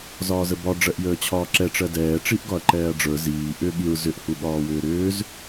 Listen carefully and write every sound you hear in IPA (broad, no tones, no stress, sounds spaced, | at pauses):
z ɒː z ə b ɒ ɖ͡ʐ ɜ ʔ j əː t͡ɕʰ ɒː ǁ ɛ ʈ͡ʂ ɜ d ɛː ʈ͡ʂ i ʔ ɡ ɒ ɐ̯ ǃ ɛː ɐ̯ ɖ͡ʐ ə˞ z iː ʔ ʏ ɠ i ɹ z ʏ ʔ h u ɠ ɒː w ʏː ɾ ʏː z